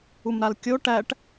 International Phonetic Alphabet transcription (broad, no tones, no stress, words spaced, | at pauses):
umɾalkʲo ʈæʈ